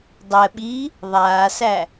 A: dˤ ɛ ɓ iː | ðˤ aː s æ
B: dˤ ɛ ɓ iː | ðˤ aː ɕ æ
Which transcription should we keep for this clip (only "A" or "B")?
A